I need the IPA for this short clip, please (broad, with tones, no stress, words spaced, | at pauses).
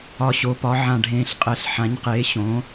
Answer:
ɒ˨˩ɕo˩˧pɒ˩˧ ʕã˨˩ɖʱẽː˨˩ɬqʼɛ˨˩ɬ ħã˩˧ɲqeː˩˧ɕõ˩˧